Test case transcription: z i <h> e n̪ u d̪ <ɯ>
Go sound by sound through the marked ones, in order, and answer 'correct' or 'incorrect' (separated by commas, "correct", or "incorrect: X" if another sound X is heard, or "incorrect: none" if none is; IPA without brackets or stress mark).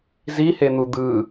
correct, correct